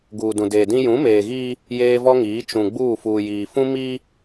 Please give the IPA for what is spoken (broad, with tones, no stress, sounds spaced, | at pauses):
ɡ uː˨ d ũ˨ d eː˨ d ĩ˦ j ũ˨˦ m eː˨ ɣ iː˦ | j eː˦ v ɔ˦ ŋ iː˨˦ t͡ʃ ũ˨ ɡ͡b uː˦˨ f uː˨ j iː˨ f ũ˦ m iː˦